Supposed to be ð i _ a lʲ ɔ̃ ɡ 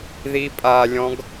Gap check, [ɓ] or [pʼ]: pʼ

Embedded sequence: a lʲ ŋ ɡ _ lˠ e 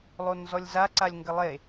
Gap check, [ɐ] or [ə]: ə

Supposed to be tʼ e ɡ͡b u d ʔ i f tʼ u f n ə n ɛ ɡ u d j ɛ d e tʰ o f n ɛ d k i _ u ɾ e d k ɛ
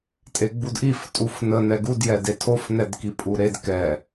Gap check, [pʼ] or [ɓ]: pʼ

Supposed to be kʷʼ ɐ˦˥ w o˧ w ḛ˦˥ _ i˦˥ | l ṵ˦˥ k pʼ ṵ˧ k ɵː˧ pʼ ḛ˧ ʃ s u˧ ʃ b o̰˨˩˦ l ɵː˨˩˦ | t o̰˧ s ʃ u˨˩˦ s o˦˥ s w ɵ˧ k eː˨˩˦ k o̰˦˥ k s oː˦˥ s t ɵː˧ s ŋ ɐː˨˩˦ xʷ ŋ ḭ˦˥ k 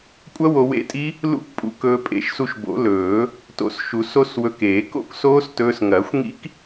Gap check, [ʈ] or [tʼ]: tʼ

